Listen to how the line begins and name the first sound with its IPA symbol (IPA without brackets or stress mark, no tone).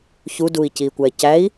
ç